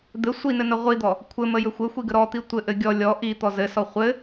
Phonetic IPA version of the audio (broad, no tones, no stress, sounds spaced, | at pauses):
d̪ ɘ sʷ i n ɘ n ə ʁʷ i d̪ ɔ | kʷʰ ɘ m ə j ɘ xʷ ɘ xʷ i ɡ ə ɾ ɔ t̪ i tʷ ɘ ʔ ɘ ɡʲ ɔ lʲ ɔ ʔ i t̪ ɔ z ɘ s ɔ χʷ ɘ